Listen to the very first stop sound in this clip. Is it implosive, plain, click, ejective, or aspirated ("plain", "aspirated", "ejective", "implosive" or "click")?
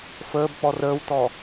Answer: plain